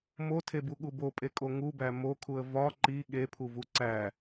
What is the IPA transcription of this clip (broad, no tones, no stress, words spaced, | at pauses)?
motʰebuɠu bopʼekʼo ŋubæ mokʰuə̯ vɒ ǃi ɠepʰuvu ǀæ